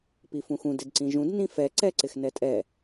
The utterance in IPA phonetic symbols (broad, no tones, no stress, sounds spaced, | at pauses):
p i f ũ x ũ d ɪ d ǀ ĩ ʒ ũ d n ĩ f ɛ ǀ ɛ ǀ ɪ x n ɛ tʼ ɛ